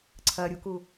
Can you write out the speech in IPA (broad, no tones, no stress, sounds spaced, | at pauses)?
ǀʰ ɐ ɾʲ u k u